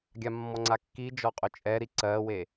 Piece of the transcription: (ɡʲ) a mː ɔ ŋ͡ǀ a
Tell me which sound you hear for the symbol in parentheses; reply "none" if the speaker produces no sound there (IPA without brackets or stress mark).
ɡʲ